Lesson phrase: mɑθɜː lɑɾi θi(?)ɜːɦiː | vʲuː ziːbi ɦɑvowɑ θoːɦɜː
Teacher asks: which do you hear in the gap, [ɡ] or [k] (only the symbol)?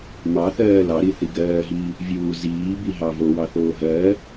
ɡ